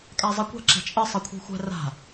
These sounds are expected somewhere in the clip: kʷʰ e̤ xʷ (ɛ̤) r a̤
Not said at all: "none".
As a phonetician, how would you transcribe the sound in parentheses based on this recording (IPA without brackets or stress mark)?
ɛ̤